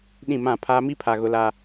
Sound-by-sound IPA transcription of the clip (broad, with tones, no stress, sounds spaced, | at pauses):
ɗ ĩ˦˨ m ã˦˨ pʰ aː˦ m i˦ pʰ a˨ ɣ ʊ˨ l a˨